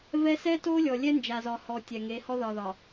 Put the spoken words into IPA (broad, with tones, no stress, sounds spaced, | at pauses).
v ɛ˦ s ɛ˦ t o˦ lʲ ɔ˨ lʲ ɛ˦ n d͡ʒ a˨ z ɒ˨ h ɔ˨ tʲ ɛ˨ ŋ e˨˦ h ɔ˦ ð ɒ˨ ð ɒ˨